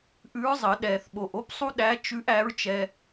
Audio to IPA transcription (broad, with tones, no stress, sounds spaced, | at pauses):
ʔ ʉ˧˥ ɹ zˤ ə˨˩˦ ɗ ɛ˨˩ θ ɓ o˨˩ ʔ o˥ p sˤ u˥ ɗ æ˧˥ t͡ʃ ʉ˧˥ ʔ æ˧˥ ɹ t͡ʃ ɛ˧